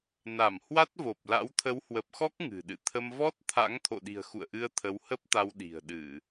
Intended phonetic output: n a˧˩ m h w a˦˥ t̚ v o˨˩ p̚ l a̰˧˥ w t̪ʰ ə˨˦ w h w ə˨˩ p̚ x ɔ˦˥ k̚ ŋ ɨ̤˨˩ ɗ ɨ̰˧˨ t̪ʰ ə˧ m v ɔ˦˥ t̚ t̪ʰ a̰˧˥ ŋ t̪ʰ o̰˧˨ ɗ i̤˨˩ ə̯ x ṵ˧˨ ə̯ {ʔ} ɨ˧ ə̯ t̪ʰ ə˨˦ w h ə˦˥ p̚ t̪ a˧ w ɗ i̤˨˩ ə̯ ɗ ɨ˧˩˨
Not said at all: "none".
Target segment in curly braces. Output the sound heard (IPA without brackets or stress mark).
ʔ